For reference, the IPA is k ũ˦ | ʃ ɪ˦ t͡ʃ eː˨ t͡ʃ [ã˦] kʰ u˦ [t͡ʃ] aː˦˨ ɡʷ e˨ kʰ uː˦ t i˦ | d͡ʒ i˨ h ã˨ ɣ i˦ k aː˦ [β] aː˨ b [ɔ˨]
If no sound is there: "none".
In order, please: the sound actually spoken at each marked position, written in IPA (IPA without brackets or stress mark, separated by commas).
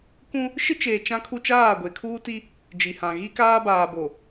ã˦, t͡ʃ, b, o˨